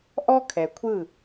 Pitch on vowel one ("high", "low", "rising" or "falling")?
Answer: high